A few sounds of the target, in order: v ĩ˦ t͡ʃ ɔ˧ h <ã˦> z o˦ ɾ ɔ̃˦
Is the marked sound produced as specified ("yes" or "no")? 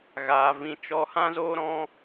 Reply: yes